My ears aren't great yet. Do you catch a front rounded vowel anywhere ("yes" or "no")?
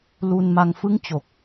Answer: no